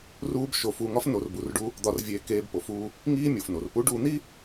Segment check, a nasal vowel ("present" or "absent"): absent